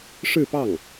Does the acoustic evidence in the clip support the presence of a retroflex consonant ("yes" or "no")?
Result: yes